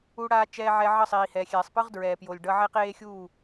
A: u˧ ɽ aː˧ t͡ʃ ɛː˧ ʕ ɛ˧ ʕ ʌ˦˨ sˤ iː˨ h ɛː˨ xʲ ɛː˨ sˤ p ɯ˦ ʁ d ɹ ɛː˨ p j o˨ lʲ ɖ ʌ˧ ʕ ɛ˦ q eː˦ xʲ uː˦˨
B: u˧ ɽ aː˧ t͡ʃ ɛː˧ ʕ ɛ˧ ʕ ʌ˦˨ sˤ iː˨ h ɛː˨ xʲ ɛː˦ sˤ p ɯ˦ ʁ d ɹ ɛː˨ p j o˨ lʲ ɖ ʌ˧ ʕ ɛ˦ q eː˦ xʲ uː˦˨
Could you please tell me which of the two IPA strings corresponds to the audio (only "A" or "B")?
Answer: A